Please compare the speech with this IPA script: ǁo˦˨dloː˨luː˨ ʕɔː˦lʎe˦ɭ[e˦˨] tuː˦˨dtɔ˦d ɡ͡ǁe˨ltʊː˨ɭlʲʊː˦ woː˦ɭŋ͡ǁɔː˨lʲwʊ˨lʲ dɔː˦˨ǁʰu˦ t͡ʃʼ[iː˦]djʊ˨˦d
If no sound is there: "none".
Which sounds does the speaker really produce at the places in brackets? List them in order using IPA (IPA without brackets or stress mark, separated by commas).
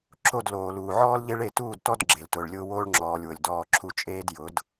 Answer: e˦˨, eː˦